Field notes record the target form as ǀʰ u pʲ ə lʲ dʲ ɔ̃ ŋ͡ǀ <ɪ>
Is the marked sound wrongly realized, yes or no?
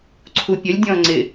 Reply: no